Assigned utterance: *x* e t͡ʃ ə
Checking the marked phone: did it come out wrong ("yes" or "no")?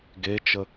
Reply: yes